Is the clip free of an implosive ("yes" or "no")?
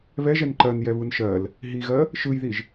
yes